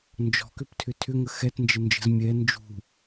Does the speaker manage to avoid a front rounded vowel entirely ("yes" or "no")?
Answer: no